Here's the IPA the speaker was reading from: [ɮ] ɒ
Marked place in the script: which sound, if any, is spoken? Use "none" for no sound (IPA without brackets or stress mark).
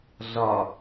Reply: ɮ